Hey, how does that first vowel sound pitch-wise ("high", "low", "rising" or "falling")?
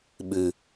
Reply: low